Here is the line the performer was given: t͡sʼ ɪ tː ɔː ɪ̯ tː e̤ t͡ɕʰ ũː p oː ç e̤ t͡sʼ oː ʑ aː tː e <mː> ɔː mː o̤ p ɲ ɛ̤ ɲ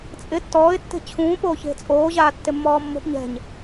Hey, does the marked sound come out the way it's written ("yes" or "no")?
yes